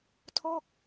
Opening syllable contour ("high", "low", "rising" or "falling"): falling